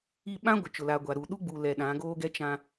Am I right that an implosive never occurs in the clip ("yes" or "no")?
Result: no